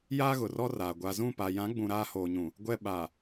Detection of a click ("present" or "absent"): absent